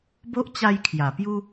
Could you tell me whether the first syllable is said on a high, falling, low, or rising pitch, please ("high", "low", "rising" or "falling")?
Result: high